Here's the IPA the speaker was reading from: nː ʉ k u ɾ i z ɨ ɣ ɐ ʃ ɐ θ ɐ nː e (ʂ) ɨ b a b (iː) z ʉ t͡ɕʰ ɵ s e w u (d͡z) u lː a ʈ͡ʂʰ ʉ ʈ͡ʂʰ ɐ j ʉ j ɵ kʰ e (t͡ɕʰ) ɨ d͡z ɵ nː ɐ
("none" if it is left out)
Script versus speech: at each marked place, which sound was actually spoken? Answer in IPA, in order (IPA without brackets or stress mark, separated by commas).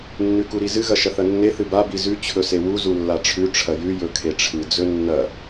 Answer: θ, i, z, ʈ͡ʂʰ